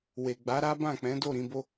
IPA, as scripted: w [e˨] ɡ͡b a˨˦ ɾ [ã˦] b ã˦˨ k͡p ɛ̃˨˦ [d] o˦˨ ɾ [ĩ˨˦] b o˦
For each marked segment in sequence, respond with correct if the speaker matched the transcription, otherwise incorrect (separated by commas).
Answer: correct, incorrect, correct, correct